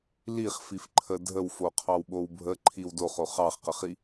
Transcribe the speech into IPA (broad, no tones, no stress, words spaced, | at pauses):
liχfifǃʰə dʱəwfo qʰɑwɓowbʱə ǃʰiwdoχo χɑχqəχi